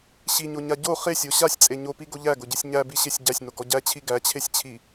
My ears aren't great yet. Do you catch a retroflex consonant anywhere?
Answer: no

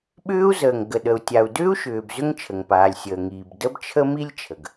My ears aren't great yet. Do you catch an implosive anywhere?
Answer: yes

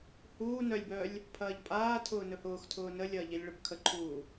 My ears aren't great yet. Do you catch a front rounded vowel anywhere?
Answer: yes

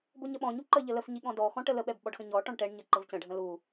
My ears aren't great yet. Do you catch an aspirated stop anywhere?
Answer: no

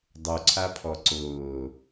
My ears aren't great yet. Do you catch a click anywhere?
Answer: yes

